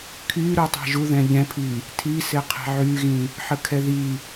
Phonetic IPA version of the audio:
kʰ y ɾ u tˤ ɛ̤ ʒ u ð ɛ̃ ʎ ɛ̃ pʰ i | tʰ i s ɪ qʰ ɛ̤ ʕ y ɣ ĩ | ħ ə kʰ ɛ ð i

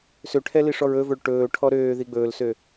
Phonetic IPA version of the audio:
s ø ʈʰ ɛ l i ʂ ɔ ɹ ɵ v ɵ ɭ ʈ ɵː ʈʰ ɔ ɾ øː ð i ɡ͡b ɵː l s ø

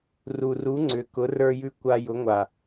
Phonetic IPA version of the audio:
r u˨ r u˨˦ ŋ͡ǀ ʏ˨ k ʊ˨˦ r ə˞˧ j ʉ˧ kʷ a˧ j ʊ˨˦ ŋʷ a˨

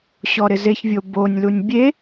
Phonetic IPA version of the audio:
ɕ ɔ ɾ ɪ z e ç vʲ o b o nʲ l u nʲ bʲ e

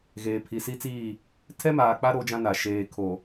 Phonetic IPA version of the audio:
ɣ eː˨ pʰ i˨ s i˦ t͡s iː˦˨ | tʰ ɛ˦ m aː˨ k͡p a˦ ɾ o˦ d͡ʒ ã˦ n a˨ ʃ eː˨ kʰ o˨

